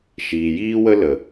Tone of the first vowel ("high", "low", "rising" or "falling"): low